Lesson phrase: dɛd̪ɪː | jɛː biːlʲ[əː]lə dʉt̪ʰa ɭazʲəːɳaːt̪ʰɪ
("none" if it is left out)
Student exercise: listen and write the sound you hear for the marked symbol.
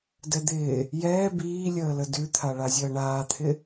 əː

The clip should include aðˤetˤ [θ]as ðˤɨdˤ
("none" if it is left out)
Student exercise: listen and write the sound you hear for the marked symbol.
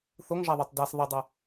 d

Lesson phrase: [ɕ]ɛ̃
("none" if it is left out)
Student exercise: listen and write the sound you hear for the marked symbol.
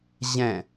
ʑ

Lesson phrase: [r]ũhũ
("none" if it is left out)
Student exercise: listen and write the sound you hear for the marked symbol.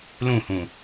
l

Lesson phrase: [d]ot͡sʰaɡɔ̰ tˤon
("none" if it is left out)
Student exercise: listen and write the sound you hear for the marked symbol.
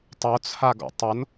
tˤ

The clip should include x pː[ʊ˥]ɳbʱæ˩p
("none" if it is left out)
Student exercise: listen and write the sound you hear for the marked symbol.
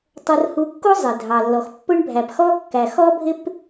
ʊ˥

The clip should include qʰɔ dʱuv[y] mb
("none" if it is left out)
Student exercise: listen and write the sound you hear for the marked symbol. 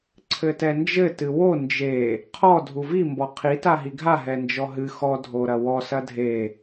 i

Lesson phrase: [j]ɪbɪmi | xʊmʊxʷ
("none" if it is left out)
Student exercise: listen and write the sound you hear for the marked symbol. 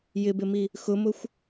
j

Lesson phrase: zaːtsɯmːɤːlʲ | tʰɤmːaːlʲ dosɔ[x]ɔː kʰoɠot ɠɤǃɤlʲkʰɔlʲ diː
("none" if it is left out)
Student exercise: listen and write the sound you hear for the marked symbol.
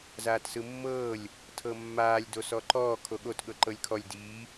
ǃ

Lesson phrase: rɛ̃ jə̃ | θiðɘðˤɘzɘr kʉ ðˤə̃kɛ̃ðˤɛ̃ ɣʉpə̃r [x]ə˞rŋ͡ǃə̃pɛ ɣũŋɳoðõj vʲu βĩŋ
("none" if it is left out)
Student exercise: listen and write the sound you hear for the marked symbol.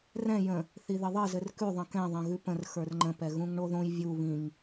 x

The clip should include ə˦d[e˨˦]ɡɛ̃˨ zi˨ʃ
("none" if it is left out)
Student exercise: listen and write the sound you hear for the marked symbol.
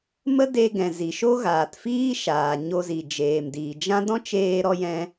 e˧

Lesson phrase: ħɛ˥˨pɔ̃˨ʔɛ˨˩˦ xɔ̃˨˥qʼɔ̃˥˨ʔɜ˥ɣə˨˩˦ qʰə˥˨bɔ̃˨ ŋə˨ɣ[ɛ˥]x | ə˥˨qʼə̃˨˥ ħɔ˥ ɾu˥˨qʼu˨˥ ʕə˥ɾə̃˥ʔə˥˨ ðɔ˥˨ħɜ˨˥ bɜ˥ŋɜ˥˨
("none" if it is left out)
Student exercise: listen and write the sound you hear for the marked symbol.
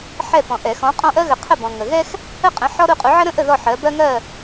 ɛ˥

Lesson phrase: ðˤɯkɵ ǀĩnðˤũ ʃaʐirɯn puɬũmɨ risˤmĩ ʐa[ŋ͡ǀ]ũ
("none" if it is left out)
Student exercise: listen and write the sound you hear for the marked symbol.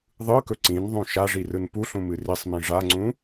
ŋ͡ǀ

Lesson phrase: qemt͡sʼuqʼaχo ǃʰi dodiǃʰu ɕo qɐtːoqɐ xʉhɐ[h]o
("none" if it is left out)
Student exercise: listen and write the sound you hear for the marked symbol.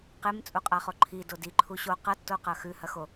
x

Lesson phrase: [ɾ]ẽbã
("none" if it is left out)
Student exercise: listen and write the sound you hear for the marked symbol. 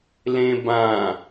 l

